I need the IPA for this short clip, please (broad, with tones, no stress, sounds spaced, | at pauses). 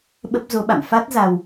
ɓ ə˦˥ p̚ z o˨˦ ɓ a̰˧˨ m f a˦˥ t̚ z a˧ w